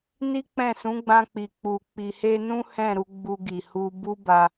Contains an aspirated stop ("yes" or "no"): no